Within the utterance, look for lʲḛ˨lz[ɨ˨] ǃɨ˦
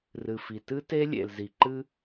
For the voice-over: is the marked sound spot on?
no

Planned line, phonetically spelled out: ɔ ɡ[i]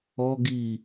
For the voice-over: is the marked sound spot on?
yes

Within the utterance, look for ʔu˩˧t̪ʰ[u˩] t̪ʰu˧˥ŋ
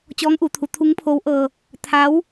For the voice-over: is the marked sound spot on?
no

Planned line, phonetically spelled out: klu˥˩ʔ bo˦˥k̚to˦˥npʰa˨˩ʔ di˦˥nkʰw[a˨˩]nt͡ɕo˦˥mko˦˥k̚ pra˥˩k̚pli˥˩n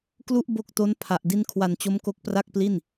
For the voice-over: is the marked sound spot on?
yes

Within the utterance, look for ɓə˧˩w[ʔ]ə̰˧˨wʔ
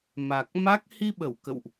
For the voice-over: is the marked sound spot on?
no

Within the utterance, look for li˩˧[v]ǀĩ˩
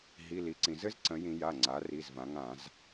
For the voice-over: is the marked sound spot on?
no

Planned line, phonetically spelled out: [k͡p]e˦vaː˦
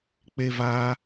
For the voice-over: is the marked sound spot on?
yes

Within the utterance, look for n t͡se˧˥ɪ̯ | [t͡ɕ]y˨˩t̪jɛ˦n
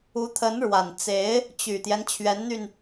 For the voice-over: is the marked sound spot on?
yes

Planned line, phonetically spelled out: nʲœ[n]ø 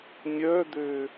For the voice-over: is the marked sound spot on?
no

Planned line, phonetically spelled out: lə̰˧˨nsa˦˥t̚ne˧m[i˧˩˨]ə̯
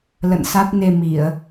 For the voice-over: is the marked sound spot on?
yes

